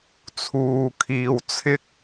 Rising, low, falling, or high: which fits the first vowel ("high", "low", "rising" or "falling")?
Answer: low